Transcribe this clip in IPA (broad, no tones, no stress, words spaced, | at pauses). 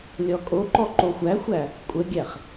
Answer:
lʲɔkʼoǃɔ ǃoxʷæxʷæ | kʷʼəɡʲæχ